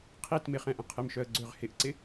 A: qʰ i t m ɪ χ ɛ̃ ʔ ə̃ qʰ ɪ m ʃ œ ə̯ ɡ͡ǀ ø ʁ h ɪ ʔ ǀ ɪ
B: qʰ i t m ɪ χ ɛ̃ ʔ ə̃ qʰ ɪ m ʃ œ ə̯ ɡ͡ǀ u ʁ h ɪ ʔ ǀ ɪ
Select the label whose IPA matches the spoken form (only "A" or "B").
A